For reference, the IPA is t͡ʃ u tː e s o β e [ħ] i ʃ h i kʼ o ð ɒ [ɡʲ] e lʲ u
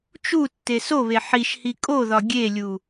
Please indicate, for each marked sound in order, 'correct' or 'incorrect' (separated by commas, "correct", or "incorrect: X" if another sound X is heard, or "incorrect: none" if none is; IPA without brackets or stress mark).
correct, correct